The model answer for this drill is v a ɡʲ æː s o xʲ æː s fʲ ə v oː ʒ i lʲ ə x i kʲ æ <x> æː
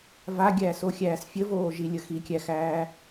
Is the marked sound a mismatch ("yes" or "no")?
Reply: no